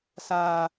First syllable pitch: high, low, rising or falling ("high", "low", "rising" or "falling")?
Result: high